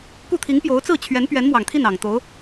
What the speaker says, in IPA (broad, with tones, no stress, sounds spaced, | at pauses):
k u˥˩ t̪ʰ i˧˥ ŋ p j o˧˥ ʊ̯ t͡s ɹ̩˥˩ t͡ɕʰ ɥ ɛ˧˥ n p ɥ ɛ˧˥ n m w ɑ˨˩ ŋ t̪ʰ i˥˩ n ɑ˨˩ ŋ t̪ o˧˥ ʊ̯